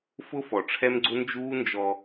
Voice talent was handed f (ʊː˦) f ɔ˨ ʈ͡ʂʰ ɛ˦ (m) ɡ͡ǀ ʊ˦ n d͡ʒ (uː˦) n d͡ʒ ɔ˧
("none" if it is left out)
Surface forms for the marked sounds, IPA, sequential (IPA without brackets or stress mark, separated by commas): ʊ˦, m, uː˦